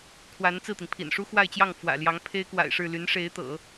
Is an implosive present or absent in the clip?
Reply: absent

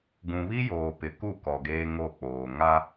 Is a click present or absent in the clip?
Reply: absent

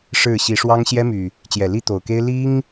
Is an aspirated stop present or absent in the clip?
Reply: absent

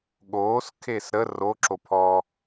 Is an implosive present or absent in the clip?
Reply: present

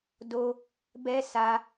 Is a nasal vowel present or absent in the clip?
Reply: absent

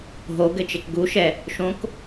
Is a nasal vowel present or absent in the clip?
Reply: present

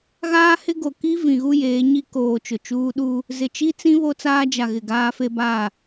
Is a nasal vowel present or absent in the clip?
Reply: present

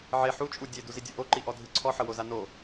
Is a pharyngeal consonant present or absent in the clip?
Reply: present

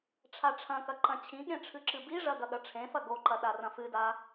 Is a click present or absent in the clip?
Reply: present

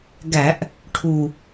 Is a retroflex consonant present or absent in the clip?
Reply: present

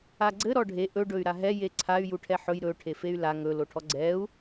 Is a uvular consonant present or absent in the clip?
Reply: absent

